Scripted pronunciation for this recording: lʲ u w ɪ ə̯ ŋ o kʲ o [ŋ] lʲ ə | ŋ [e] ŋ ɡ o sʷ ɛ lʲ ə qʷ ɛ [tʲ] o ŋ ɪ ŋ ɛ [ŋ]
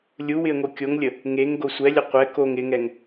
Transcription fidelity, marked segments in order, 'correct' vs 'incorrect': correct, correct, incorrect, correct

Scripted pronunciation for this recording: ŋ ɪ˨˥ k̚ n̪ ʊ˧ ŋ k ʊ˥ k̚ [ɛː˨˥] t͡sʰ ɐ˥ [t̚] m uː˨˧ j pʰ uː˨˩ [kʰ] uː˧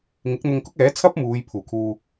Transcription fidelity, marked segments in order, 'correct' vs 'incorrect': correct, incorrect, correct

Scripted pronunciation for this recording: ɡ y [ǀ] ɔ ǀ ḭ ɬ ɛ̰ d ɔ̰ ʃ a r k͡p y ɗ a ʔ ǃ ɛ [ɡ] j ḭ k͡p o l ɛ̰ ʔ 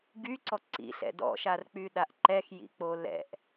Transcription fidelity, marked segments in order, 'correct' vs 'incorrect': correct, incorrect

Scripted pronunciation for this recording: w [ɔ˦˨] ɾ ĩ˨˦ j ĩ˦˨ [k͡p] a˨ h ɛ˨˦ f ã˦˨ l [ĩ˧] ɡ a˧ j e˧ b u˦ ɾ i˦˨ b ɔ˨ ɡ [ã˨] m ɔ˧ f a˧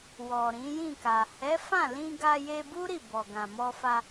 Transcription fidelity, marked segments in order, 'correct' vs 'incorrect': incorrect, incorrect, correct, correct

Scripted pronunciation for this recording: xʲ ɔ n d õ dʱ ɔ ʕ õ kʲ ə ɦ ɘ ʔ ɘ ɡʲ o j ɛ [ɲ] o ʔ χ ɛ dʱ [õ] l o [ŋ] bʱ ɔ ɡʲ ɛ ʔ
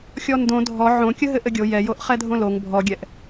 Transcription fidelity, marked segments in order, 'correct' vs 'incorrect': incorrect, correct, correct

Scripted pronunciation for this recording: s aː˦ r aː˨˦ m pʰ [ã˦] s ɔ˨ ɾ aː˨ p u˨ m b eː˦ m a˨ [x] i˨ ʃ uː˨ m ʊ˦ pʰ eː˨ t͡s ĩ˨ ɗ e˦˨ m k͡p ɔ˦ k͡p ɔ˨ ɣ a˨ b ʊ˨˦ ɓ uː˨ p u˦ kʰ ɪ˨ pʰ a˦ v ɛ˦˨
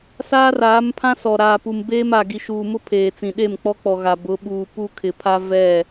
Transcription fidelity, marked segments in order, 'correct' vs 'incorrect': correct, incorrect

